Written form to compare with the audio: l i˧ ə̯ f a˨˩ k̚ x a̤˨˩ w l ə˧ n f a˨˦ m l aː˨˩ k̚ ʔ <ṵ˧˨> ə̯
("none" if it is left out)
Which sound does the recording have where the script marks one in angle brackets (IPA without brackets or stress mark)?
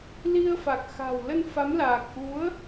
u˨˦